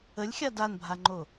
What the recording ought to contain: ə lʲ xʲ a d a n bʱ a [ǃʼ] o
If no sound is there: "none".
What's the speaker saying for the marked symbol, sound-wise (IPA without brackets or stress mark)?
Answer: ŋ͡ǃ